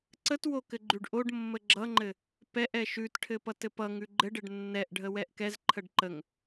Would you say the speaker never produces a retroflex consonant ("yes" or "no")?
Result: no